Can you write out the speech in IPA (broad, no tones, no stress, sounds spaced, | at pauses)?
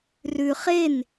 r ʉ χ e n